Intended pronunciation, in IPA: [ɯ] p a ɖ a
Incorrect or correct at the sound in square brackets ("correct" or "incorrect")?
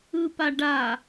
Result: correct